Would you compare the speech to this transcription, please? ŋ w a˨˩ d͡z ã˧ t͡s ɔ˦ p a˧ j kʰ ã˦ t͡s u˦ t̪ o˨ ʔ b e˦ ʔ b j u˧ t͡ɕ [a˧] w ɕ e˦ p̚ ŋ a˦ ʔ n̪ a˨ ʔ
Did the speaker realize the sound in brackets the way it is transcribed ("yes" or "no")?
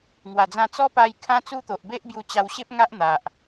yes